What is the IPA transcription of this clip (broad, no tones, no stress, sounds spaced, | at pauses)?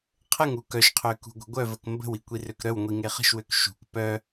qʰ ə ŋ u k œ ʃ qʰ ø k ṳ ɡʷ ə̤ ɡʷ œ v ə k m b ə̤ w i kʷ i r ø k ɾ œ w ŋʷ i ŋ e χ ə̤ ʃ w ø k ʃ ṳ k p œ